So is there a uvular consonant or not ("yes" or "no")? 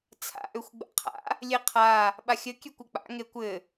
yes